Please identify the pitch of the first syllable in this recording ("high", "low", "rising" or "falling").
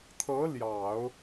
rising